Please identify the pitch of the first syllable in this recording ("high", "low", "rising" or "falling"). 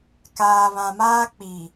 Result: low